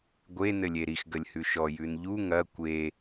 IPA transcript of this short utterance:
ɡʷ e n ɘ lʲ e ɾ i x ɡ ə lʲ h ʉ ʃ ɔ j ʉ n ʎ u ŋ ɐ kʷ e

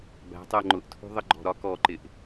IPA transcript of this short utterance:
b æ̤ tˤ ɜ ŋ͡ǃ ʊ ʔ tʰ ṳ ðˤ ə ɡ͡ǃ ɔ̤ ɾ ɒ k ɔ ǃ ɪ ʔ

